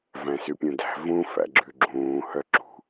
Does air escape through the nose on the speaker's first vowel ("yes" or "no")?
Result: yes